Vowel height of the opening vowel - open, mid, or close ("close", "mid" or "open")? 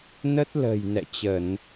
mid